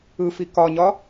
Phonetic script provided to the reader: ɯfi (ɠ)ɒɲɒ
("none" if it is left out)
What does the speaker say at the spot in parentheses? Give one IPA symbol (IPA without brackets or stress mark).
k